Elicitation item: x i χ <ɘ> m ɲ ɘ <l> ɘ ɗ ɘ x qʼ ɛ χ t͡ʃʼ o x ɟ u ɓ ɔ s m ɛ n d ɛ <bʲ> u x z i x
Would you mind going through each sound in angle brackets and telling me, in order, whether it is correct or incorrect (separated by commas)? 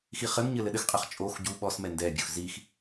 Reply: correct, correct, correct